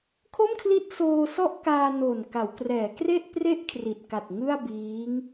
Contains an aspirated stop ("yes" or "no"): yes